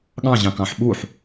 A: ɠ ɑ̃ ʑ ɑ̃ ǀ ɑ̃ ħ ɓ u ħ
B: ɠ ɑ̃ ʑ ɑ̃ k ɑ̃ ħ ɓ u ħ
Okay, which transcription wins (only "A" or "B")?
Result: B